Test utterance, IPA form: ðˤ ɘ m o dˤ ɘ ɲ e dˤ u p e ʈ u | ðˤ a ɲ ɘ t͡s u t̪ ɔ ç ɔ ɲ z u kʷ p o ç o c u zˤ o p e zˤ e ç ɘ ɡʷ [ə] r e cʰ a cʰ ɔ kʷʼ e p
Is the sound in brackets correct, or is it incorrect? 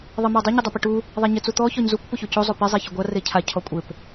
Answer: incorrect